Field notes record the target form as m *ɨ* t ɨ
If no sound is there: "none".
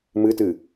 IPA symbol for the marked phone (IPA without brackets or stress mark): ɨ